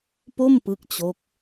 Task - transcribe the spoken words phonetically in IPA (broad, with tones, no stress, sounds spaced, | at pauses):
p o˥˩ m p ɯ˦˥ k̚ t͡ɕ o˦˥ k̚